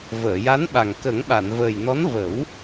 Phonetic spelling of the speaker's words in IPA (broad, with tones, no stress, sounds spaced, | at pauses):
v əː˨˩˨ j a˧˥ n ɓ a˨˩ ŋ k ə˨˩˦ ŋ ɓ a˨˩˨ n v əː˨˩ j n ɔ˧˥ n v ə˨˩˦ w